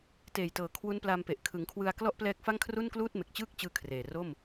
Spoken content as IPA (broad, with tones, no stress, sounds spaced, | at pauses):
t eː˨˩ j t ɤː˩˦ kʰ w u˦˥ n p l a˧ m p e˨˩ ʔ kʰ ɯ˩˦ ŋ kʰ w ɯ˧ a̯ k l ɔ˥˩ ʔ p l ɛː˦˥ k̚ f a˥˩ ŋ kʰ r u˥˩ n k l uː˥˩ t̚ m e˨˩ k̚ t͡ɕ ɯː˥˩ k̚ t͡ɕ ɯː˧ kʰ r eː˨˩ r o˥˩ m